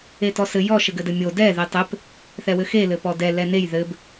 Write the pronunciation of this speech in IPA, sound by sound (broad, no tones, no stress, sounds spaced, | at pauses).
e t ɔ s ɘ j ɔ ʃ ɘ ɡ ɘ d ɘ mʲ o d ɛ ð e tˤ ɘ p | θ ɛ w ɘ x e l ɘ p ɔ d ɛ l ɛ n e j ð ɘ b